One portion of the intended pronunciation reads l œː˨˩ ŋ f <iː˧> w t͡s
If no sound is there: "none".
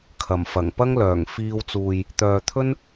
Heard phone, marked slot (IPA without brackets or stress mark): iː˧